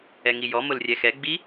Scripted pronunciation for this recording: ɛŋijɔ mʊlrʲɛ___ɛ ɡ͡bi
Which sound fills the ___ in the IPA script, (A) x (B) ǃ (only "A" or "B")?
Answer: A